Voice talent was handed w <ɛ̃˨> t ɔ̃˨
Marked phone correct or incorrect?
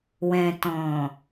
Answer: correct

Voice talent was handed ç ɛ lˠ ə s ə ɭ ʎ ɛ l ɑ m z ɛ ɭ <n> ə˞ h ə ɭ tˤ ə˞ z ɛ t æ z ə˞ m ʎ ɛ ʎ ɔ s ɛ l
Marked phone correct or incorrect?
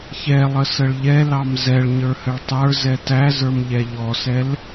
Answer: incorrect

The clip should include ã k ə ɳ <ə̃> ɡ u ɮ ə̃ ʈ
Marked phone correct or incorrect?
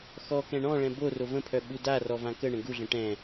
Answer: correct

